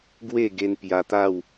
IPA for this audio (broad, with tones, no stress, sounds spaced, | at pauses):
ɡ w e˥˧ ɡ e˧ n p j a˧ t̪ a˥˧ w